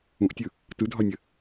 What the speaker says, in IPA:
ũ ʔ tʲ ɯ | t ɯ dʱ ɒ nʲ ə

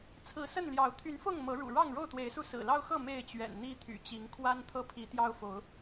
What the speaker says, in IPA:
t͡sʰ ɹ̩˨˦ s ə˥˨ n l j ɑ˨˦ ʊ̯ t̪ʰ y˨˦ n f ʊ˥˨ ŋ m ɤ˨˦ ɻ ṵ˨˩ ɻ ɑ˥˨ ŋ ɻ o˥˨ ʊ̯ t̪ w e˨˦ ɪ̯ s u˧ s ɹ̩˨˩ l ɑ˦ ʊ̯ x ɤ˥˨ m e˥˨ ɪ̯ t͡ɕ ɥ ɛ̰˨˩ n n̪ i˦ t̪ʰ y̰˨˩ t͡ɕ i˨˦ ŋ kʰ w a˦ n t̪ʰ ɤ˥˨ pʰ i˨˦ t̪ j ɑ˦ ʊ̯ f o˨˦ ʊ̯

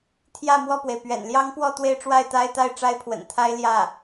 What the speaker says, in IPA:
t̪ʰ j ä˥˧ m w ɔ˥˩ p w e˩ ɪ̯ p ɥ ɛ̰˨˩ n l j ɑ˥ ŋ p w ɔ˥˧ t̪ w e˥˧ ɪ̯ ʈ͡ʂ w a˥˩ ɪ̯ t̪ a˥ ɪ̯ t̪ a˥˩ ɪ̯ ʈ͡ʂ a˥ ɪ̯ pʰ w ə̰˨˩ n t̪ʰ a˥ ɪ̯ l j ä˥˩

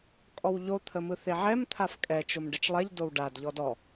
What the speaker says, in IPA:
kʼ ɔ w ʎ o t̪ʰ ə m ɯ θ e ʕ ɛ m t̪ʰ a f kʼ ɛ t͡ʃ o m ɖ ɛ t͡ʃ lˠ ɛ ʎ d o w ɖ a d ʎ ɔ d ɔ

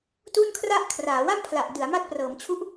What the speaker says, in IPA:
t u˥˩ n kʰ r a˥˩ ʔ kʰ r aː˩˦ w a˥˩ m pʰ l a˨˩ ʔ d ɯ˩˦ a̯ m a˦˥ t̚ p r ɤː˩˦ m t͡ɕʰ u˦˥ ʔ

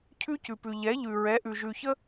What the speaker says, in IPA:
cʰ ʉ˦ c ʉ˨ p ʉ˨ ʎ ɛ˨˦ ʎ ʉ˨ ɹ ɛ˨˦ ʔ ʉ˨ ʒ ʉ˨ ç ə˦

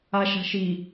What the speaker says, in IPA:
a ʃ a̤ ʃ i

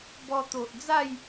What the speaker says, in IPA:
b ɔ˧ t̪ o˨ ʔ d͡z a˥˧ j

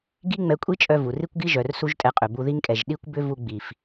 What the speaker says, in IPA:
ɡ i˦ ŋ͡m ɛ˧ kʷʼ i˦ t͡ʃʼ œ˧ v u˨ r i˦ kʷ ɡ i˦ ʒ œ˨ r s u˦ ʒ tʼ ɛ˧ qʼ ʏ˨ b u˧ ð i˦ ŋ kʼ ɛ˨ ʒ ɗ i˦ kʷ b ʏ˦ v u˧ ɡ͡b i˨ f

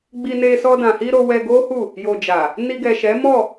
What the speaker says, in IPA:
ɡ͡b i˧ n e˧ s ɔ˧ d ã˨ h i˧ ɾ o˧ w ɛ˧ ɡ o˦ h u˦˨ | j o˨ d͡ʒ a˨ | n i˧ ɡ ɛ˨ ʃ ɛ˨˦ m ɔ˦˨

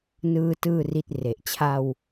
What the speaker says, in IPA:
n ɯː˥˩ t ɯː˥˩ r i˦˥ t̚ r e˨˩ ʔ t͡ɕʰ a˧ w

